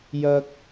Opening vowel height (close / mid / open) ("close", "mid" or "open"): open